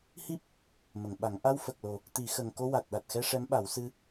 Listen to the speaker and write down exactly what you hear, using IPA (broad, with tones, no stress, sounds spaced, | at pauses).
h i˦˥ p̚ | m ə˨˩˨ ŋ ɓ a˨˩˦ ŋ ʔ a˧ w f ə˨˩ k̚ l o˨˩ | t̪ i˨˩˦ x ə˨˩ ŋ k o˧ w a˨˩ t̚ ɗ a˨˩ t̚ x ɛ˧ ʂ ɛ˧˥ m ɓ a˨˩˦ w s ɨ˧